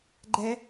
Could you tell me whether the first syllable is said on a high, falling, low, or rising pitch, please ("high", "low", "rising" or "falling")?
high